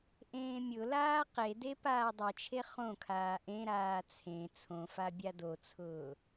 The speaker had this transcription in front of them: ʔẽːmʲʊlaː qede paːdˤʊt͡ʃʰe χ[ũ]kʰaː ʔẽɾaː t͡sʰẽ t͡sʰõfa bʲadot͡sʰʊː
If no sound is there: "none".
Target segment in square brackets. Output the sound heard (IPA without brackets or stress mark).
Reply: õ